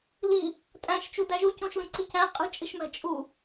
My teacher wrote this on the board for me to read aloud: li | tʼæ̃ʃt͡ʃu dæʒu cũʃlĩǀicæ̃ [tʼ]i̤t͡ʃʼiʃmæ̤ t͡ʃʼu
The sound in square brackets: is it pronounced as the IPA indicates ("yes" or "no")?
no